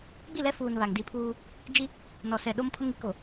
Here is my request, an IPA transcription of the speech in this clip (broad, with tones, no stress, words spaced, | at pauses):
ɡ͡bi˦˨lɛ˦ fuː˨n βa˨ŋ di˦˨pʰuː˦ | d͡ʒi˦ | nɔ˨sɛ˨ɗo˦m pʰʊ˦ŋi˦ko˨